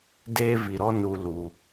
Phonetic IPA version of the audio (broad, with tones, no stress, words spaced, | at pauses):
deː˦vi˨ɾɔ˦ nu˨ lu˨